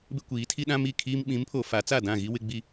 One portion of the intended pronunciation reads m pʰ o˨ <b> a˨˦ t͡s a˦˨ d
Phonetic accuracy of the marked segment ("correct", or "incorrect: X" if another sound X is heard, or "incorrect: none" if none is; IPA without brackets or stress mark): incorrect: f